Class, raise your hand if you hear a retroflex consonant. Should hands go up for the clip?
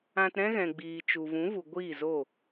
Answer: no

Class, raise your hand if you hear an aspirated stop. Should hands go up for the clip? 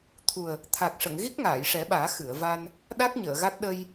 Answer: yes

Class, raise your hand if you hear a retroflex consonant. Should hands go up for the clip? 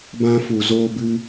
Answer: no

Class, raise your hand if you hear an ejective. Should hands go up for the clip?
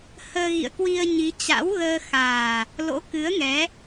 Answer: no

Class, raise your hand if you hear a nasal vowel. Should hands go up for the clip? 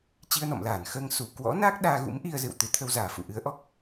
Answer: no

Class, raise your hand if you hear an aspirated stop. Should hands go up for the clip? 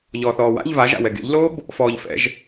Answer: no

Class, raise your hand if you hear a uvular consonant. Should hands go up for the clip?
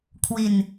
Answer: no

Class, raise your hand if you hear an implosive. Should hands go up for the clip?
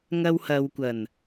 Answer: no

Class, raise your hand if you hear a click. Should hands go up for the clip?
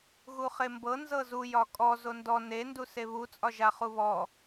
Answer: no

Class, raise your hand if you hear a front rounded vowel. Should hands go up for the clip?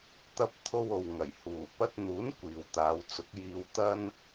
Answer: no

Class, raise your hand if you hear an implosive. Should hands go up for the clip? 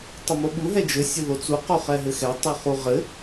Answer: yes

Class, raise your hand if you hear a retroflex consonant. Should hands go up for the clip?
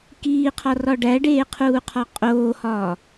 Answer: yes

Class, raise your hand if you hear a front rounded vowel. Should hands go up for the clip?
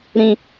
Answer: no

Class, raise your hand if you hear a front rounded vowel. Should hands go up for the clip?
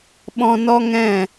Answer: no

